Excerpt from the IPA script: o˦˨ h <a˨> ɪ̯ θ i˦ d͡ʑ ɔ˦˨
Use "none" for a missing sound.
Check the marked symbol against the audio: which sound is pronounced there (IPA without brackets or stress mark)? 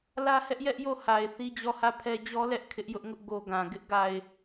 a˨